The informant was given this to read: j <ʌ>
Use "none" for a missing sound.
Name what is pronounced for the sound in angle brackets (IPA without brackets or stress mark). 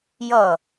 ʌ